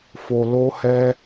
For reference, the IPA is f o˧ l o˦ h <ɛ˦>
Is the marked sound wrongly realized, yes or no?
no